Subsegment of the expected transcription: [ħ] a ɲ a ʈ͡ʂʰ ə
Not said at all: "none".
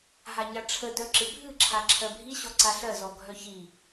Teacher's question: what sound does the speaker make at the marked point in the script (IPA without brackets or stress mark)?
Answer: ɦ